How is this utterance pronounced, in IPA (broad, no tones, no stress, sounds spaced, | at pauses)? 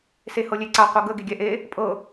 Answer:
s e h ɤ lʲ e ǀ a qʷ ɤ ɡ ə ɡ e ɡʲ ɛ ʔ e | pʼ ɤ